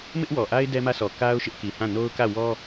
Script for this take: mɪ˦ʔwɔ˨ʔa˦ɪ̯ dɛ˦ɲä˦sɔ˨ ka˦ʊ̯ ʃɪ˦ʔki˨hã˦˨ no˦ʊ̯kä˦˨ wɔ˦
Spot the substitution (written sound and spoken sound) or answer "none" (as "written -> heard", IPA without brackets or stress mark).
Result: ɲ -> m